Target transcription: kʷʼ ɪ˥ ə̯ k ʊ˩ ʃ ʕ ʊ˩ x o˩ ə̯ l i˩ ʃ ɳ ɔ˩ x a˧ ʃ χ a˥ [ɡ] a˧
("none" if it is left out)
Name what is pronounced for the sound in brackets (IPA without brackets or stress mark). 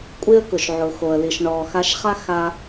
x